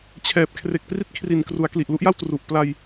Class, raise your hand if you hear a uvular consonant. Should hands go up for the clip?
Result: no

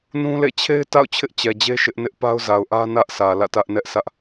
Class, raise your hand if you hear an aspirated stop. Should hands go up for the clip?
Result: yes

